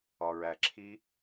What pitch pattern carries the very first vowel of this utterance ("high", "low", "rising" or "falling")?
low